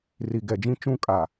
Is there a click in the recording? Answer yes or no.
no